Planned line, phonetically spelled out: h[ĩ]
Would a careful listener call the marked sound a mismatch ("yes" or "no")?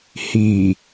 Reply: yes